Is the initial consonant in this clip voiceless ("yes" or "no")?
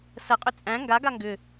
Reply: yes